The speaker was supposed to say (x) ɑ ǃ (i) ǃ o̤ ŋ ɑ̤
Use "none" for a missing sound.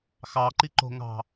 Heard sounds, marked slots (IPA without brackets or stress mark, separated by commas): x, i